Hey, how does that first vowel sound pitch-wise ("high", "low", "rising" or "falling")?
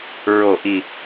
low